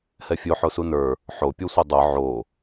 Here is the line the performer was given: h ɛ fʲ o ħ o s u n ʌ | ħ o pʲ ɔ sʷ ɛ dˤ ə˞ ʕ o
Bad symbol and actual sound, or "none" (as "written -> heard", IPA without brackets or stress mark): ʌ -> ə˞